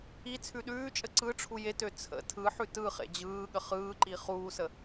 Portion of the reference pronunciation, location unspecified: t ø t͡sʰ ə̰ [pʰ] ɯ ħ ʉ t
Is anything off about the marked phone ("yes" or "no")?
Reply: yes